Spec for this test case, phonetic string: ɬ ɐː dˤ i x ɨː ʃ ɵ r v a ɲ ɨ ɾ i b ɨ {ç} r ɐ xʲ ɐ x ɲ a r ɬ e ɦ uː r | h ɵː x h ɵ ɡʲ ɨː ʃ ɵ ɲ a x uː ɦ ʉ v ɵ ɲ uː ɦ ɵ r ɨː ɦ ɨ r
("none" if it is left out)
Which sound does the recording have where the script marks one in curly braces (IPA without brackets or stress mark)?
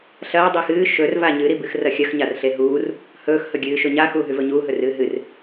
x